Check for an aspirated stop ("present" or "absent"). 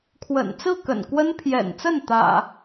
present